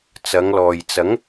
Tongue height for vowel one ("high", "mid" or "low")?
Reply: low